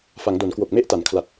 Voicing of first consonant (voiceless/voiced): voiceless